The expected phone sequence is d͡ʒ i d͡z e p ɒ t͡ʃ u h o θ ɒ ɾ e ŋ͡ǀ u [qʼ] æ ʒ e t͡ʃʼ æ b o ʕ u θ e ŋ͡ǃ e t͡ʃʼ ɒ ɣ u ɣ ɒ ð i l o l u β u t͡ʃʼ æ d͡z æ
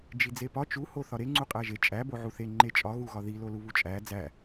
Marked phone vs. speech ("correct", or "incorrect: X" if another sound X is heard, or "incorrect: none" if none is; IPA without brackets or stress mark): correct